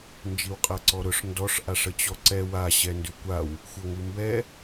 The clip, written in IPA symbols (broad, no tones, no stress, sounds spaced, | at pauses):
n d͡ʒ i w qʼ a ǀ ɔ ɾ ʊ ʂ n d ɔ ʂ ʔ a ʂ ə t͡ɕ ɔ ǀ ɛ w a ɕ ɛ n d ʉ kʷ a w | xʷ ɤ ŋ ʉ m b ɛ